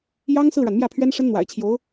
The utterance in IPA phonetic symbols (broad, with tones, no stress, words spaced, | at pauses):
jɑ˥ŋ sɹ̩˥˩ɻa˩nmjä˥˩pʰɥɛ˥n ʂə˥nn̪wa̰˨˩ɪ̯t͡ɕʰjo˧˥ʊ̯